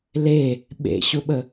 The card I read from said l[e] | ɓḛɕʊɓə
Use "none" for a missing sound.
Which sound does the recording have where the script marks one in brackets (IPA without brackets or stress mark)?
e